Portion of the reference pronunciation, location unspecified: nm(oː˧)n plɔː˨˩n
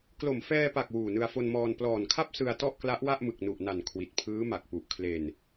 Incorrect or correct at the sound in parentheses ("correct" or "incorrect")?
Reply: incorrect